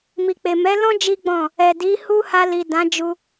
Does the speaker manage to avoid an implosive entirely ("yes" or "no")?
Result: yes